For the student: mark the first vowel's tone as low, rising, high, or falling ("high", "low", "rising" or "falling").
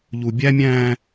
low